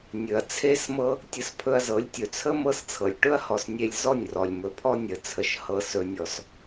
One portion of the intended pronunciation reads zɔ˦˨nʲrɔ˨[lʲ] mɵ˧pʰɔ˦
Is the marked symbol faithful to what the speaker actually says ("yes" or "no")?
yes